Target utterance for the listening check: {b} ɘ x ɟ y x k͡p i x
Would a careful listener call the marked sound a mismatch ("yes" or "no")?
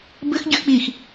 no